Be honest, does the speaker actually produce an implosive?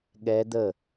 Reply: yes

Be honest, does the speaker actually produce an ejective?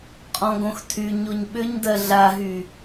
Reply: yes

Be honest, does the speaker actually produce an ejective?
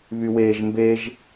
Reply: no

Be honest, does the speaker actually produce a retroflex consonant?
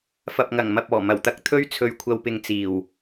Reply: no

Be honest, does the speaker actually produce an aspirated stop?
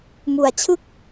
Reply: yes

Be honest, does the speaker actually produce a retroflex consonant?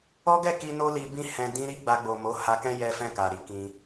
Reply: no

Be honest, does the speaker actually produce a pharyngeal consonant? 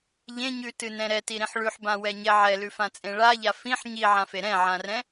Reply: yes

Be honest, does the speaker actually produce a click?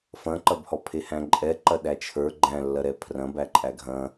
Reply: yes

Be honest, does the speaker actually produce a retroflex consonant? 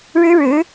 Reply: yes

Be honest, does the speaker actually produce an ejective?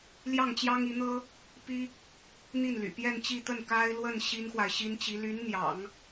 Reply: no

